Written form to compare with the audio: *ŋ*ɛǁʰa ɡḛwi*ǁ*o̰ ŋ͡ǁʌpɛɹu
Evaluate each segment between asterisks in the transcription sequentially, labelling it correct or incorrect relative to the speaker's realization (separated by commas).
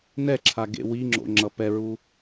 incorrect, incorrect